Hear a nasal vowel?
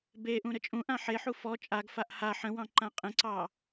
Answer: yes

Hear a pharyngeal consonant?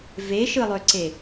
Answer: no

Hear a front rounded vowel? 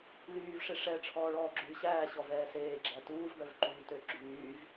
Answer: yes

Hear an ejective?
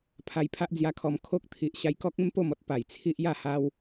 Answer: no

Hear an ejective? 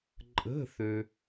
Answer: yes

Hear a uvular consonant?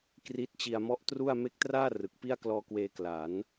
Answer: no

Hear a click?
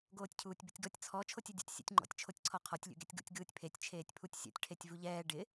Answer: yes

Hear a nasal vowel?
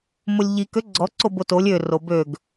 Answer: no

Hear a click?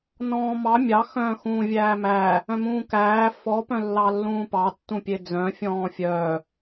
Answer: no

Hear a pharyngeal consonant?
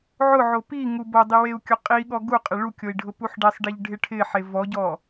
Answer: yes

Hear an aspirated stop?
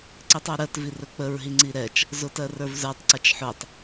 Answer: no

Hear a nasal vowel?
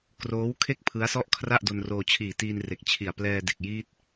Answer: no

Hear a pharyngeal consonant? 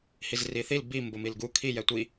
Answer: no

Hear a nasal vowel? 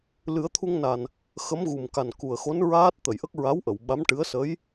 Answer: no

